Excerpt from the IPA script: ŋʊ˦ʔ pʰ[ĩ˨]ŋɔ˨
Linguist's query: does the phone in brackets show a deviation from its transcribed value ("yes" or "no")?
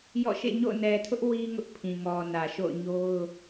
no